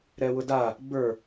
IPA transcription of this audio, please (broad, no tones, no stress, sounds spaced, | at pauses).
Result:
ɾ ɛ w ʊ d a | b ə˞